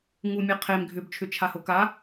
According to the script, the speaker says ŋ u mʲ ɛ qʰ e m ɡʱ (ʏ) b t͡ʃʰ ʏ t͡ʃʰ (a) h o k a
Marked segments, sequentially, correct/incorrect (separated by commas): correct, correct